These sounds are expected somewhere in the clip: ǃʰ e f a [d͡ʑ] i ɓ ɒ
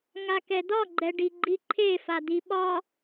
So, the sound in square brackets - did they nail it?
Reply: no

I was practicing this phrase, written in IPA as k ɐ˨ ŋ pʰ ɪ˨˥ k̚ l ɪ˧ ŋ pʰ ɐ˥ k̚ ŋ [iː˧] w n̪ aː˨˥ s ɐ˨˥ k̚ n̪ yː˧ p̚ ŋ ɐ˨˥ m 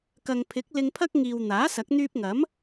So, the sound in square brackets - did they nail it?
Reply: no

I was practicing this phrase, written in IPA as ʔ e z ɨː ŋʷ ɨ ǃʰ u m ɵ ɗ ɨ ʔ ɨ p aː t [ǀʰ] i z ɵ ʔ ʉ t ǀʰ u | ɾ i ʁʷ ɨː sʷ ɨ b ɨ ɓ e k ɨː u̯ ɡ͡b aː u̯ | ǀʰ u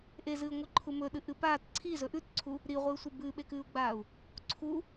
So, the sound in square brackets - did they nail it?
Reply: yes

